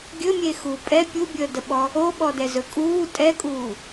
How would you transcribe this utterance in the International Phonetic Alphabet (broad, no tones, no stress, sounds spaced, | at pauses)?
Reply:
ɡʲ ɵ mʲ e x uː pʼ ɛ pʲ u bʲ əː d ə ɓ ɔ | o ɓ ɔ d ɛ z ɵ kʼ uː tʼ ɛ kʼ uː